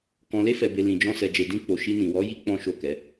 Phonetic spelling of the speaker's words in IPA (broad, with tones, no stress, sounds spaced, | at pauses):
k ɔ̃˨ l e˧ f ɛ˨ b e˨ l ĩ˨ d͡ʒ ɔ̃˧ s ɛ˨ d͡ʒ e˨ d ĩ˧ k͡p o˨ ʃ i˧ n ĩ˨ w ɔ˨˦ j i˦ k͡p ɔ̃˦ ʃ o˦˨ k ɛ˨˦